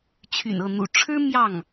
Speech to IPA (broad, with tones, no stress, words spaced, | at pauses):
t͡ɕʰy̰˨˩nɤ˥˩n̪ṵ˨˩ ʈ͡ʂʰɻ̩˥ mjɑ˥˩ŋ